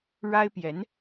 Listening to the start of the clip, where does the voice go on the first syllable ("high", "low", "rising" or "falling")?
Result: high